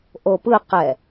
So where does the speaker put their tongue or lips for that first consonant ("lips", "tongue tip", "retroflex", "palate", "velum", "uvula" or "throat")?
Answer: throat